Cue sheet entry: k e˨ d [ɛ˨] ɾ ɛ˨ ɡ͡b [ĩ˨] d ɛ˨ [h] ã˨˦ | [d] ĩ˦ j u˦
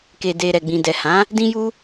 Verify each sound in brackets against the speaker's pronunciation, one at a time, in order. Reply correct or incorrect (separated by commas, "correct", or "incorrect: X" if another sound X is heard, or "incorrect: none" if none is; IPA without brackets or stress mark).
incorrect: e˨, correct, correct, correct